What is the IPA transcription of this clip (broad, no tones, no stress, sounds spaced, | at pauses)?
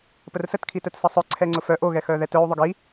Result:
p ə r s ə t kʰ i t œ t s ə sˤ œ ǀʰ ɛ ŋ͡ǀ ʊ f œ ʔ o ɣ ɛ x œ ð ɛ t œ u̯ ðˤ ʏ ɡ i